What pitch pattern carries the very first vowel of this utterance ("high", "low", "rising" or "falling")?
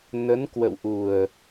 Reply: rising